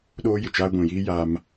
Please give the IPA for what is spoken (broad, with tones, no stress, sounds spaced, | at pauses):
ɗ oː˦ j ɪ˨ t͡ʃ aː˦ ɡʷ ĩ˨ j iː˦ j a˦ m